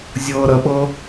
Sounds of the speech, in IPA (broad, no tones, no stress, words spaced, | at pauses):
zʲɤːɾəɓɤ